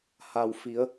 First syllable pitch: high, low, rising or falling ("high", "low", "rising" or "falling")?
low